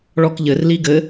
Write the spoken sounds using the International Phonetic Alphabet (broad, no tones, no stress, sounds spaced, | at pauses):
ɭ ɔ k ʎ ɘ r l i ɡ ɘ